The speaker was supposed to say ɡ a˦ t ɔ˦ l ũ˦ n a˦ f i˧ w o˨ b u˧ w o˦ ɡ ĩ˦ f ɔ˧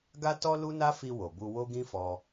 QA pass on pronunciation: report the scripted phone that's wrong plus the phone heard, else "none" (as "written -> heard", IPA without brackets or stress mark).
ũ˦ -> u˦